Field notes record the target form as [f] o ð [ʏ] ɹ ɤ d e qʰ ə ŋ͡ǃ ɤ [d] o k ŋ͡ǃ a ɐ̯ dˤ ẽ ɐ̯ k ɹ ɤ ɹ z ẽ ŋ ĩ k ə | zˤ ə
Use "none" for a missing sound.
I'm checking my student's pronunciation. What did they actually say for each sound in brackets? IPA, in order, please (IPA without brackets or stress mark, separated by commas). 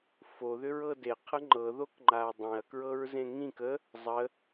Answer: f, ʏ, ð